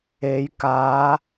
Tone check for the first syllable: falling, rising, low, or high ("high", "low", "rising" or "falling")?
rising